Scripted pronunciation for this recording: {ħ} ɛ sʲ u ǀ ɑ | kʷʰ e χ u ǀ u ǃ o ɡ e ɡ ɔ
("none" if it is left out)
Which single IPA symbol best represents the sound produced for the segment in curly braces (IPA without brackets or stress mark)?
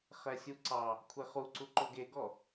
χ